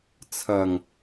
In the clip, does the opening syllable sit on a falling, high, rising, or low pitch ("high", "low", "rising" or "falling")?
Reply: low